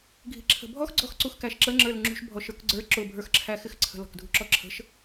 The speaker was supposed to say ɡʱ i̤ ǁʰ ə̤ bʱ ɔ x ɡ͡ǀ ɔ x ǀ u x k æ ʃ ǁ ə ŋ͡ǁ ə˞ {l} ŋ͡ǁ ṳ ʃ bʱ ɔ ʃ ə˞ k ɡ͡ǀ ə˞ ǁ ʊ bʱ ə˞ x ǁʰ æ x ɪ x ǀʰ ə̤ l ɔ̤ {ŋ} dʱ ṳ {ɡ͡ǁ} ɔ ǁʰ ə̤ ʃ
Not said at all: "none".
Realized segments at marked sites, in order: l, k, ǁ

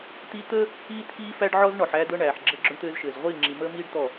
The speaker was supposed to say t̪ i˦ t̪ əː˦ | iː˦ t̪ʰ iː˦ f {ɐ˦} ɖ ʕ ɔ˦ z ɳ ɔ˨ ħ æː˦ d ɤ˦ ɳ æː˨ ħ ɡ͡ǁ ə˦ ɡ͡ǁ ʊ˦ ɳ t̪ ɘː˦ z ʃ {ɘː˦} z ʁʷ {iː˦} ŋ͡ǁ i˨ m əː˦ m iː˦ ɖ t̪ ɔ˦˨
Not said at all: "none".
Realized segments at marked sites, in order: æ˦, ɘː˨, iː˦˨

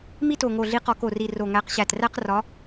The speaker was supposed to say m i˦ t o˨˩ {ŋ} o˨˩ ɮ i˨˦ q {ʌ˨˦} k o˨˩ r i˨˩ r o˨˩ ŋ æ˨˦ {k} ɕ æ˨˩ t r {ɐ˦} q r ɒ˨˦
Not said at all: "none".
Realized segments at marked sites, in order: ŋ, ɒ˨˦, q, æ˦

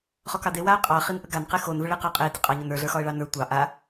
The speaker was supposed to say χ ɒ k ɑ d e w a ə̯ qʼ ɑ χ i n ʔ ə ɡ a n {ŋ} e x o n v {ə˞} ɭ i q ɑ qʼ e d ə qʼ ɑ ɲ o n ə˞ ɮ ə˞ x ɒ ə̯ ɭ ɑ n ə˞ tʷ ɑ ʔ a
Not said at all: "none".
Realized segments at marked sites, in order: q, ə

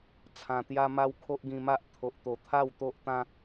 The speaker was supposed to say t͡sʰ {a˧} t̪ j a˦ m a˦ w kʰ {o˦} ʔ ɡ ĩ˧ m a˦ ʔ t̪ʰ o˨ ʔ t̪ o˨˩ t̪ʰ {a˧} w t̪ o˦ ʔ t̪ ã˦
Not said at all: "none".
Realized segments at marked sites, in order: ã˧, o˦, a˥˧

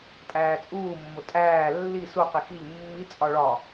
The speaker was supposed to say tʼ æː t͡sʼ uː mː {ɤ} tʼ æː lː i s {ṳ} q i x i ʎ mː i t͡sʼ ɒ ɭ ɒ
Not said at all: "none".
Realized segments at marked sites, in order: o, u

